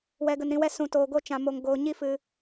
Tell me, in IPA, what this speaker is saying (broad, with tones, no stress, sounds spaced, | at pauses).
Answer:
w ɛ˨ ɡ ə˨ n ɾ ĩ˨ w ɛ˧ s ũ˨ t oː˨ ɡ o˦˨ t͡ʃ ã˨ m o˨ ŋ ɡ oː˧ ɲ i˦ f ɨ˧